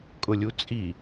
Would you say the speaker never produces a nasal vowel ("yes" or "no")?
yes